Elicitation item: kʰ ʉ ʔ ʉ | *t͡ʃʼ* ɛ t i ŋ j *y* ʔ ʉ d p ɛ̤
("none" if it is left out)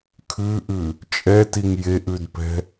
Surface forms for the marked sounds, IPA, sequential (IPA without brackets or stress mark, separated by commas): t͡ʃʼ, e